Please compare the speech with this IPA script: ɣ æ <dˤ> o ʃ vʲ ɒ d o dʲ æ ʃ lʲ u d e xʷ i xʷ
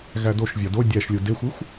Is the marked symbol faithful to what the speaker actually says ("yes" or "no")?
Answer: no